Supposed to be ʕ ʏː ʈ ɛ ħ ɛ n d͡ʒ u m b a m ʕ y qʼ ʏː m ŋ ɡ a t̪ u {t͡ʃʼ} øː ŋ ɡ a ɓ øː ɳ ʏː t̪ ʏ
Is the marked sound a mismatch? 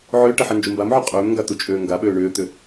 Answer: no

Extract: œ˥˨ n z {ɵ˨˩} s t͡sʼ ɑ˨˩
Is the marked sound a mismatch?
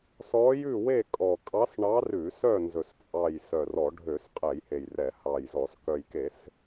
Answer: no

